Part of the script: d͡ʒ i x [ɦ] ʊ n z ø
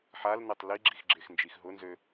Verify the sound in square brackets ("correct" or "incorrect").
correct